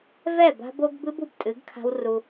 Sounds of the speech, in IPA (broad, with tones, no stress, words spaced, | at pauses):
vɛ˦˨ba̤˦bo˦ɡ bɨ˦bu˨btʼɨ˨˦ɡkʰa̤˦w ru˦